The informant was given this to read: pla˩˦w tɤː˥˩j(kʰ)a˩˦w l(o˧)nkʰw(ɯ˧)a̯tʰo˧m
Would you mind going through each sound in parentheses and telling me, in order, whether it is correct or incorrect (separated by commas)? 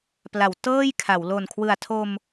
correct, incorrect, incorrect